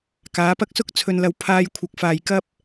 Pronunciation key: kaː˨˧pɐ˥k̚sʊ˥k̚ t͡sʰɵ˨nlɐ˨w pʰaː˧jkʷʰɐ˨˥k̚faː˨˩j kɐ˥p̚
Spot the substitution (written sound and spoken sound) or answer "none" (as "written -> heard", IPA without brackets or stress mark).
none